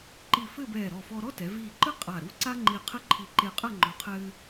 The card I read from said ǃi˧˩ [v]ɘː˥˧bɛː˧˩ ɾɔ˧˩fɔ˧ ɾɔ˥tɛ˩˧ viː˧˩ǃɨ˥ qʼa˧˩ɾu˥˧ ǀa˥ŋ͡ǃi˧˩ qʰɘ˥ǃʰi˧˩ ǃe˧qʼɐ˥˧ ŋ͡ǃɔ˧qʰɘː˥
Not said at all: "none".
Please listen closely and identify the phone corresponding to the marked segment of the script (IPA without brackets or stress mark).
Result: f